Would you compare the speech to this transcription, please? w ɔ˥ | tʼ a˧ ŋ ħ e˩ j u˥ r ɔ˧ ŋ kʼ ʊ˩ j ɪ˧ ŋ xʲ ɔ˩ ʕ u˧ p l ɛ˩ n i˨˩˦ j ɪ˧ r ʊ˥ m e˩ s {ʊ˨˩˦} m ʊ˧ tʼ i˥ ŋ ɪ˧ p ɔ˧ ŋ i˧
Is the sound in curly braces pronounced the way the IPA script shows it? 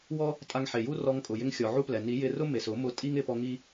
yes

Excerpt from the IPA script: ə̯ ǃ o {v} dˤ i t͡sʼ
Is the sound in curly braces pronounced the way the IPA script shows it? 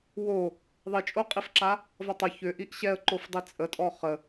no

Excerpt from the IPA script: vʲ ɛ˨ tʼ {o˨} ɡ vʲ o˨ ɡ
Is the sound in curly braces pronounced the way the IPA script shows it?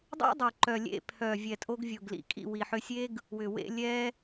no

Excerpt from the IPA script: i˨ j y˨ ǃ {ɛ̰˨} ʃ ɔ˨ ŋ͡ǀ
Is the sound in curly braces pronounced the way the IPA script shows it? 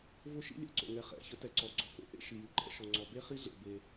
no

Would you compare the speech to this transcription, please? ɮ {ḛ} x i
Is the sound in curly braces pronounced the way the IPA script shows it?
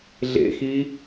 yes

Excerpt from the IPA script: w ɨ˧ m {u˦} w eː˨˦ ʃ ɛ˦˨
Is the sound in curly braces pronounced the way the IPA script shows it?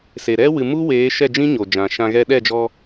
yes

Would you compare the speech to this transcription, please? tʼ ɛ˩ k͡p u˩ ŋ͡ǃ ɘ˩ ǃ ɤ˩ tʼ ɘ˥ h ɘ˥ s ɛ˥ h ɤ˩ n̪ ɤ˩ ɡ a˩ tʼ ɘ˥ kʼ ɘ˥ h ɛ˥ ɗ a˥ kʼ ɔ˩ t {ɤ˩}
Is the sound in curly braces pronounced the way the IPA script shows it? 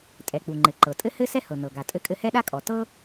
no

